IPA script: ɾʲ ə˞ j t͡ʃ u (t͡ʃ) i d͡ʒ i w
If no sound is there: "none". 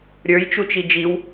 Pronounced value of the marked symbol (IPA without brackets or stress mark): t͡ʃ